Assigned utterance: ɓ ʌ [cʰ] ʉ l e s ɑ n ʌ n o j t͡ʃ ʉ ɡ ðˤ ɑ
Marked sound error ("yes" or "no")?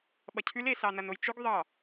no